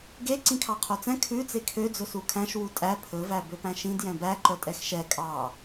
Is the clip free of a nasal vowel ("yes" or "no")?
no